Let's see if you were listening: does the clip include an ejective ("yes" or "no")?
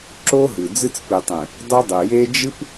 no